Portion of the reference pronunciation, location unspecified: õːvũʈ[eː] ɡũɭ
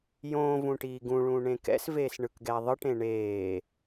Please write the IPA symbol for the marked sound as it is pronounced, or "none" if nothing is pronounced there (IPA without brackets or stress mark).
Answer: iː